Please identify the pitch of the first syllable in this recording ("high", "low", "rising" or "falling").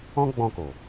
high